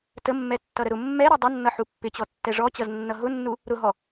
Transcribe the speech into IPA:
t ə mː ɛ tː ʌ ɾ ə ɾ ʊ mː ɛ ɾ ʌ dˤ ə nː ʌ ħ u pː ɪ t͡ɕ ɔ tː ɛ ʐ ɔ t͡ɕ ʌ z nː ʌ ɦ ʊ nː u | ɾ ʊ ɦ ɔ

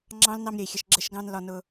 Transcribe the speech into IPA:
ŋ͡ǁ ɑ̃˦ l n ɑ˧ m ɾʲ ə˨ i̯ xʲ ə˨ ʃ ɡ͡ǁ ə˧ ʃ ɡ ɑ̃˧ n l ɒ˧ n ʊ˧

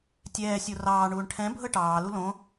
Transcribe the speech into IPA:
tʲ ɛː sʲ o r ɑː ɳ uː ɳ ʈʰ ɛ̃ bʱ ɤ ʈ ɑː l u l õ

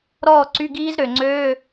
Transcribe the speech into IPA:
ɾ ɔː˥˨ ǀ y˧˥˧ ɡ iː˦˥ z ɾ ø˨˩ ŋ͡ǀ øː˧˥˧

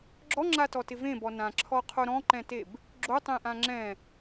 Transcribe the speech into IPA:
ɡ͡ǁ ɔ ŋ͡ǁ a t ɔ t ɪ v ẽ b ɔ n ã ǁʰ ɔ qʰ o ɾ ɔ̃ ǃ ɛ̃ t e b | ɡ͡ǁ o tˤ ẽ ʔ ã ŋ͡ǁ ɛ̃

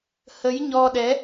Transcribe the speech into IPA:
h ə˨˦ j ɲ ɔ˧ ɗ ɛ˨˦

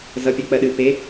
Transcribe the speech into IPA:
z ʌ pʲ ɜ k͡p ɜ ɗ ɨ p e

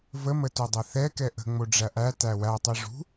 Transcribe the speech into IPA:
v ə m ə t u dˤ ɛ θ ɛ k ɛ ʔ ə̤ ŋ͡m o ɖ͡ʐ æ ʔ æ t æ w æ tˤ ɛ ʐ ṳ

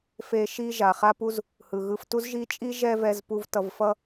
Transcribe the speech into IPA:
f e˧ ʃ i˧ ʒ a˨ χ a˦ p u˦ z | h ɯ˨ ɣ ɯ˧ f t u˦ z ʒ i˦ t͡ʃʼ i˦ ʒ ɛ˦ v ɛ˧ z p u˧ v t ʌ˧ v f ʌ˦

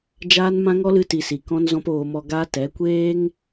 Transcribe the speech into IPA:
d͡ʒ aː˦ n m ã˦ ŋ ɔ˦ l ɨ˧ t i˨ s i˨ k ɔ̃˦ n z ɔ̃˦ p oː˧ m ɔ˧ ɡ aː˦ t ɛ˨˦ kʷ eː˦ ŋ

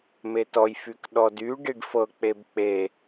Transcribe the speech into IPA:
m e t ɔ j f y k ɗ ɔ d y ɖ i ɖ f ɤ k͡p e b k͡p e

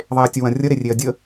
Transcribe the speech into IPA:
ðˤ e ɐ̯ tʲ ə w ɐ̃ rʲ ə ɾ e rʲ e ɐ̯ dʲ ə

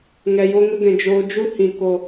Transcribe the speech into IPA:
ŋ ɛ˧ j o˦ ŋ ə˦ ɡ ɛ̃˧ d͡ʒ oː˦ d͡ʒ u˦ h ĩ˧ k o˧

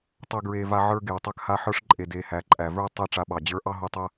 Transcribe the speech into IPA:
tˤ ɐ˦ ɡ ɹ e˧ v a˧ ʕ ə˞˧ ɡ e˨ w tˤ a˧ k h a˧ ħ ə˞˧ ʂ ǃʼ e˨ d e˨ h æ˨ ǃʼ æ˨ v ə˞˦ tˤ e˦˨ ʈ͡ʂ a˧ ɓ ɑ˨ d͡ʑ ə˞˧ ʔ ɑ˦ ɦ o˧ tˤ ɐ˦

